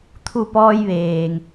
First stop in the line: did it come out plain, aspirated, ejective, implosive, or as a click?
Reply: aspirated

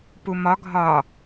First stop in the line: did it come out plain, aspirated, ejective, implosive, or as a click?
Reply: plain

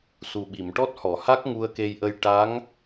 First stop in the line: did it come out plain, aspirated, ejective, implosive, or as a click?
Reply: implosive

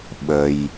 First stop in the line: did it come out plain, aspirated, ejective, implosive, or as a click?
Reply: implosive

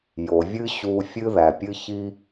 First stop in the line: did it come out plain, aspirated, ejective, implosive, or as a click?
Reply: plain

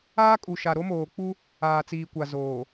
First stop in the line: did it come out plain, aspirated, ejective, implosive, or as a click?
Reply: ejective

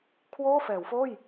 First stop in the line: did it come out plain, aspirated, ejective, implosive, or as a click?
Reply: aspirated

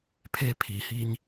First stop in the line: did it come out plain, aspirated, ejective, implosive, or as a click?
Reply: aspirated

